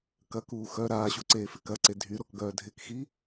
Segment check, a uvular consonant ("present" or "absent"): absent